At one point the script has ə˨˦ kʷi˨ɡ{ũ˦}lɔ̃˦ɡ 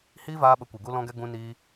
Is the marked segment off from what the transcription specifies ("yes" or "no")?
yes